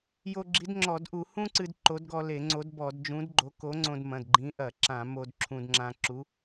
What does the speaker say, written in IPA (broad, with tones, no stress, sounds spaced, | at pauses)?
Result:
j o˧ ɡ͡ǁ i˨˥ d ŋ͡ǁ ɔ˧˩˧ d ʔ u˧˩˧ h ũ˥ ǀ ɨ˧ d ǃ o˨˥ d ɡ ɔ˧ l e˧˩˧ ŋ͡ǀ o˨˥ d b ɔ˧˩˧ d d͡ʒ ũ˨˥ d ɡ͡ǃ o˨˥ k o˨˥ ŋ͡ǀ õ˧ d m ɐ̃˩˧˩ d ɡ͡ǃ ĩ˨˥ ʔ ɐ˧˩˧ ǁ ã˧˩˧ m o˧ d ǁʰ ũ˧ d ŋ͡ǁ ã˧ ǁ u˨˥